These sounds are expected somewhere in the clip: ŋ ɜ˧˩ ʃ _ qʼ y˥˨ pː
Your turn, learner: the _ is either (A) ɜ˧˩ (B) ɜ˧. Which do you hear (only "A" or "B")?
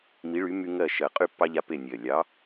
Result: A